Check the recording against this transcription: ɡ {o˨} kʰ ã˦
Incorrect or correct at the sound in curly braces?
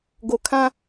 correct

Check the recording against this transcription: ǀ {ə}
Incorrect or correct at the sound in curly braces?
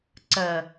correct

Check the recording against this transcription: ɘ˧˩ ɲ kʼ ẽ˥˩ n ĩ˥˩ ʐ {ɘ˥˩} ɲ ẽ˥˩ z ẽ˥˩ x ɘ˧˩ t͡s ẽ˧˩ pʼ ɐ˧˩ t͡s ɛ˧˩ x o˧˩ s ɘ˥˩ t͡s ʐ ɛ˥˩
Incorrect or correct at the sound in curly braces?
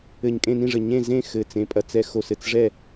incorrect: ɘ˧˩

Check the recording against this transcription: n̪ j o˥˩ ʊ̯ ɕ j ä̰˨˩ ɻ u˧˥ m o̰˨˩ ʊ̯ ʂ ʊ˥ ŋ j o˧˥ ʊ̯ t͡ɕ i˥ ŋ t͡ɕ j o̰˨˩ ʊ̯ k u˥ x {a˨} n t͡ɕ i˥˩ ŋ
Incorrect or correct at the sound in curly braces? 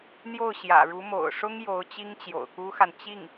correct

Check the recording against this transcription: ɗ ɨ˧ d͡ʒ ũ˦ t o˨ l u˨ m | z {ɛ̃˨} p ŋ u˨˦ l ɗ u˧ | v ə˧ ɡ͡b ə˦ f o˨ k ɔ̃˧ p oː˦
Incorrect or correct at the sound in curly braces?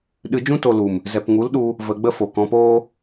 incorrect: ɛ˨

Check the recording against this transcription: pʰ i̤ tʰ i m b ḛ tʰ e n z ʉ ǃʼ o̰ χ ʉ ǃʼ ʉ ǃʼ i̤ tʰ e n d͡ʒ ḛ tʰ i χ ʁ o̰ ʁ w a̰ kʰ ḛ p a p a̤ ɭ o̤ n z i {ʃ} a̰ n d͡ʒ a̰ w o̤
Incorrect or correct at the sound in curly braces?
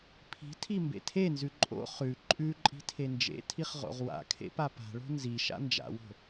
correct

